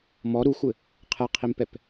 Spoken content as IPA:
m ɔ ɾ u xʷ ɘ | qʰ ɛ qʰ i m p ɛ p

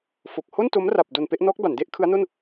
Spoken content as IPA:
f o˨˩ k̚ h o˥˩ n t o˦˥ m r a˨˩ p̚ d o˨˩ n p e˥˩ ʔ n ɔː˦˥ k̚ b a˩˦ n d e˦˥ ʔ kʰ ɯ˦˥ a̯ n o˥˩ n

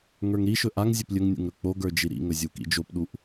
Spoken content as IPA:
ŋ ə˞ ŋ ɾ i ʃ ɵ ʔ a ŋ zʲ ɵ p lʲ ɵ ŋ nʲ ṵ ŋ ɾ ɵ k͡p o ɡ ə˞ d͡ʒ i ɾ ḭ ŋ ɵ zʲ u k ḭ d͡ʒ o p ɗ u ʔ

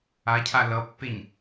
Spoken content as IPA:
a cʰ a l ʌ pː e ɲ

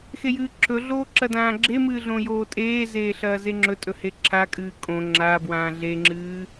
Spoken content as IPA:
x e j ɨː ǁʰ ɵ ɮ oː ǁ ɐ d ãː ɡ͡ǁ e m ɨː ɮ õ j oː tʼ eː z eː ɬ ɐː z e ŋ͡ǁ ɵ tʼ ɵ h e ǁʰ a kʼ ɨː kʼ õ ŋ͡ǁ a b w ãː ɮ e ŋ͡ǁ ɨː

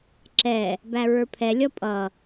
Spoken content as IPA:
ǁ ɛ | b æ ɹ ə˞ pʰ ɛ lʲ ʌ pʼ ʌ

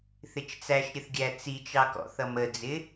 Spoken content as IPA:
θ ɪ t͡ʃ t͡s æ ʃ ɾʲ ə θ ɡʲ æ t͡s i t͡ʃ ɑ k ɔ̰ θ ʌ m ə d͡z ɪ

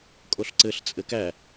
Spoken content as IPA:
kʼ o ɬ ǀ ɘ ɬ t͡sʼ ɘ k æ

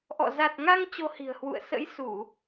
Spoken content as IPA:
ʔ ɔ̰˧˨ z a˨˩ t̚ ŋ a˧ ŋ t͡ɕ o˧ h i̤˨˩ ə̯ h w ṵ˧˨ ə̯ s ə̰˧˥ j s u˧˩˨

